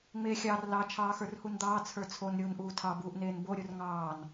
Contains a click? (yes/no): no